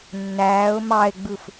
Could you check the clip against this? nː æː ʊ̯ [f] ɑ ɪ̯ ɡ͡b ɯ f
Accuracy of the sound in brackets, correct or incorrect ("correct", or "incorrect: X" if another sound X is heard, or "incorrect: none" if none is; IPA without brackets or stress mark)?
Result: incorrect: m